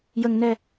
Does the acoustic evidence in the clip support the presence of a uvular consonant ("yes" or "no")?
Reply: no